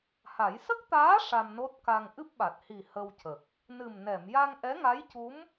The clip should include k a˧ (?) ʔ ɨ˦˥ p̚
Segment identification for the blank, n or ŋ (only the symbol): ŋ